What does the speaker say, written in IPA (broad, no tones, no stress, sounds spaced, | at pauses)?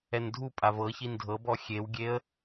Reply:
ɛ n dʱ u pʼ a v ɤ ç i n dʱ ɤ b ɔ xʲ e w ɡʲ e ə̯